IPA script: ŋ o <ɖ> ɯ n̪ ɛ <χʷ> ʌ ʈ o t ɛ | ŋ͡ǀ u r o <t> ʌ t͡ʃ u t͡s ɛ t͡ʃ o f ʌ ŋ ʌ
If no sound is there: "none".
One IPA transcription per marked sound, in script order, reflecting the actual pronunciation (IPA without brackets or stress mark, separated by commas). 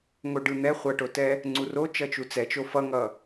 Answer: ɖ, χʷ, t͡ʃ